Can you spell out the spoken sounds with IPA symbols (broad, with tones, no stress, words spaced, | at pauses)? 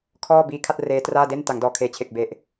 kʰɔː˥˩biː˧kʰa˥˩t̚ reː˦˥traː˥˩de˥˩n ta˩˦ŋdɔː˨˩kʰeː˨˩t͡ɕʰe˨˩k̚ be˨˩ʔ